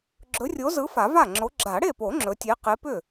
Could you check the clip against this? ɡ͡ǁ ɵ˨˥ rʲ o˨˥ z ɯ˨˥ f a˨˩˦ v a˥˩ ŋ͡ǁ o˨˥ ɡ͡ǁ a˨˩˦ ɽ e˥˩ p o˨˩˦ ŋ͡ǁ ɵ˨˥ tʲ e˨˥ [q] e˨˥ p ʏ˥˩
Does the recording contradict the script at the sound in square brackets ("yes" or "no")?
no